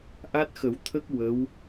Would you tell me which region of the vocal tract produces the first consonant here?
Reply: throat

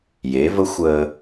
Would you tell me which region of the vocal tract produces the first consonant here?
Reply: palate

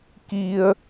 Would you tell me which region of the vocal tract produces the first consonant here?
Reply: velum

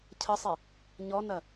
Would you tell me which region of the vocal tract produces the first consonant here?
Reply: palate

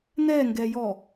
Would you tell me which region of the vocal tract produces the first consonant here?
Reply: tongue tip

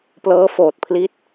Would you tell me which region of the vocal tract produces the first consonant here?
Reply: lips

